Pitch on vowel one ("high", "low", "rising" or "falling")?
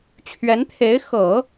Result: rising